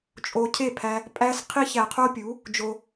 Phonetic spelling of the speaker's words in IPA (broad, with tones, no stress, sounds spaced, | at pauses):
t͡ʃʼ o˧ cʰ e˥˩ pʰ æ˧ | pʼ æ˥ s qʰ i˥ ç æ˧ qʰ o˥ pʲ u˩˥ | d͡ʒ o˧